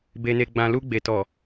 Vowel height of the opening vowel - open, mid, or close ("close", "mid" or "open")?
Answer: mid